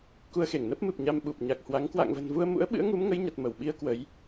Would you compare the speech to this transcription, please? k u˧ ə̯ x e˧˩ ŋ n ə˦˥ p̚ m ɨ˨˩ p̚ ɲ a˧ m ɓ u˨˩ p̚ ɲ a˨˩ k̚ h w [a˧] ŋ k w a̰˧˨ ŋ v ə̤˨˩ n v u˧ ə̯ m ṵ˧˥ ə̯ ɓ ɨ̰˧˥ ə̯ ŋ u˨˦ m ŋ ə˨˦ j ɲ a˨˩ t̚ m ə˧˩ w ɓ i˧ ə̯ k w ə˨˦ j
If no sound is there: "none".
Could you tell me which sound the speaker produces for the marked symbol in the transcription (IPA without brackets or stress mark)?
a˨˦